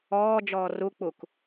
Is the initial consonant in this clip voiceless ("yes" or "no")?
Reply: no